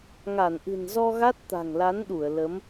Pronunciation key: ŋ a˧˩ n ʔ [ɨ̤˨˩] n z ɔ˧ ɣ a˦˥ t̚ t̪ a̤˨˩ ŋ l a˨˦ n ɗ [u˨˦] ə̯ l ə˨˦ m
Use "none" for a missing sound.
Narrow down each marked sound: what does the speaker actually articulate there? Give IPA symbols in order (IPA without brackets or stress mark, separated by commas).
ɨ̤˨˩, u˧˩